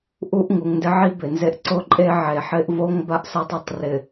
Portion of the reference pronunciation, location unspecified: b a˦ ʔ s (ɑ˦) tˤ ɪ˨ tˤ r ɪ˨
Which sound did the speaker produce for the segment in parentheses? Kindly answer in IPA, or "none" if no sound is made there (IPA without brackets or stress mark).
a˦